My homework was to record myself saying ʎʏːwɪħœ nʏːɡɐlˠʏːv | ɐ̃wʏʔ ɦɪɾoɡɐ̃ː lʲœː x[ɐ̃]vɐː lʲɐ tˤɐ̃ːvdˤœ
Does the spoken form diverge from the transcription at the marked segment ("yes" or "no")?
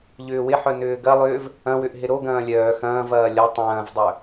yes